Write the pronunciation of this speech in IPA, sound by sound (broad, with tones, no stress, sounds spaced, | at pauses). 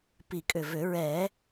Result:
p i˨˩ kʼ ʏ˨˩ v ʏ˨˩˦ ɹ ɛ˨˩˦